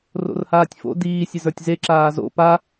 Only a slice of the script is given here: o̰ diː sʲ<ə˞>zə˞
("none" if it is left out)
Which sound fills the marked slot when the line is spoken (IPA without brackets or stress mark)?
ə